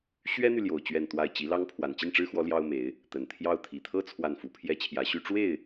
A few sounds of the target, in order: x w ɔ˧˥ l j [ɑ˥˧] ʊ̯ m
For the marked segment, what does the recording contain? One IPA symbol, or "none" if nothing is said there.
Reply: ɑ˥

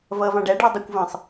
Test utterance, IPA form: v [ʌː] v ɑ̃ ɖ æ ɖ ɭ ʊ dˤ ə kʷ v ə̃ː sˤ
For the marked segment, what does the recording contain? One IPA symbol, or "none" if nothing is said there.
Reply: ʌː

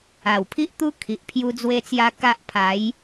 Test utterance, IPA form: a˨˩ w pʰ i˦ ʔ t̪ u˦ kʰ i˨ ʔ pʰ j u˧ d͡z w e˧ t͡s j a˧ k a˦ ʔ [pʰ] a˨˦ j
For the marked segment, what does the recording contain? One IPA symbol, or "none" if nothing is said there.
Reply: pʰ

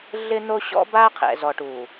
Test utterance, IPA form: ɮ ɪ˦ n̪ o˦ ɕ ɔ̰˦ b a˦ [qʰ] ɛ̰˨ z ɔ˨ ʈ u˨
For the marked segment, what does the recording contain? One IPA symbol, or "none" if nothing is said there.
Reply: qʰ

